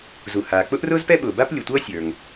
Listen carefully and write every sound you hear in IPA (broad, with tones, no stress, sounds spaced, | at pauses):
z u˩ h aː˩ k͡p ʊ˥ ʔ r ʊː˥ z p ɛ˥ ɓ ʊː˩ b a˥ p lʲ ʊ˩ tʷ ʌː˥ sʲ ə˞˩ ŋ